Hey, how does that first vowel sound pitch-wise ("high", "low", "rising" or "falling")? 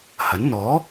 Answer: rising